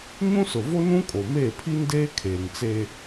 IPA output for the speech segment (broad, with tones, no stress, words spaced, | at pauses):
ɲũ˦sʊ˨vo˦nũ˦ kʼo˨meː˦˨pʰi˦ndeː˦ kʰeː˨ŋt͡se˦